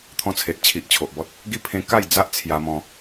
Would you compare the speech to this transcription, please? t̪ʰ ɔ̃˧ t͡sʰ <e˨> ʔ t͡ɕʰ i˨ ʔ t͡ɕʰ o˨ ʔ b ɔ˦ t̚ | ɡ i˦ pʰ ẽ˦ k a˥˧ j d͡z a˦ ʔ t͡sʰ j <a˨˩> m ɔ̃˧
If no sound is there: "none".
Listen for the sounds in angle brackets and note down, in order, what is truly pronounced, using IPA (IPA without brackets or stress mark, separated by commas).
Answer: e˨, a˧